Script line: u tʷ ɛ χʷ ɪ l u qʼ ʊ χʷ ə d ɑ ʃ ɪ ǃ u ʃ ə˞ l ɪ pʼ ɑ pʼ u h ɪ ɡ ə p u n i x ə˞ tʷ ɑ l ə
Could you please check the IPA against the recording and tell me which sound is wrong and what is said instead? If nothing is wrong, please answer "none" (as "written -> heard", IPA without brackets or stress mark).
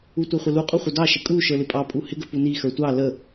ǃ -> kʼ